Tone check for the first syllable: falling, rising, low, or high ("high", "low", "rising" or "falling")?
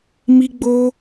high